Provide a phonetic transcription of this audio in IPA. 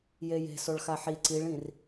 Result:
jeje̤ soɭxaħi ǀiɭĩr

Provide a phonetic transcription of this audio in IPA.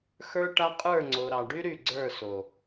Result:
xə˞˦ʈa˦ qʼə˞˦˨ŋ͡ǀo˨ɾɑ˨ ɖy˦ ɾy˦˨ɡ͡ǀə˞˦˨so˨

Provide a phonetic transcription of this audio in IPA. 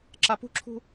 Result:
ǁapṳǁʰṳ

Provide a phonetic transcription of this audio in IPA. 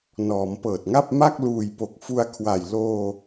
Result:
nɔː˩˦mpɤː˨˩t̚ŋa˥˩p̚ ma˥˩k̚ luː˨˩jpo˨˩k̚ fu˧a̯kʰwa˨˩jloː˧

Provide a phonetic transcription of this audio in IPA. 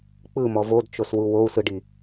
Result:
k͡pɯmɔ vodt͡ʃoswu wou̯sɯɖi

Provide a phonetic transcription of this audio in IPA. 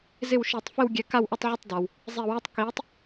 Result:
zɪ˥˩wʃi˧˩˧tˤfɪ˥˧w ɡʲɛ˨˥ka˥˧wʔə˥˧tˤ ʕə˥˩tˤda˩w | zˤi˧˩˧wɛ˥˧tˤ kiː˨˥tˤ

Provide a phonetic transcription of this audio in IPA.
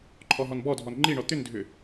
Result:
ǃʰɔɦɔnbɔdʱɔn ŋ͡ǃiɳɔ t̪ʏndʱʏ

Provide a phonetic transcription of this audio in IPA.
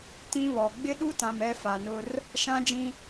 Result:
tĩ˦βɔ˨ ɡ͡bɪ˦ɗu˦tã˨m ɛ˦fa˨nʊ˦r | ʃã˦d͡ʒĩ˦

